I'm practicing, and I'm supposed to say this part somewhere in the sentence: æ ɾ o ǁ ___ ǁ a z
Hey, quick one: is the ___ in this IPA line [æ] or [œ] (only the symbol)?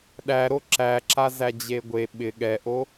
æ